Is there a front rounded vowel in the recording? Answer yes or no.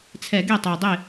no